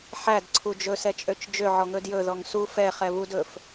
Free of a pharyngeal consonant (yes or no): no